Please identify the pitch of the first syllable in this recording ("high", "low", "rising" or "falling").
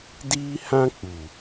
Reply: high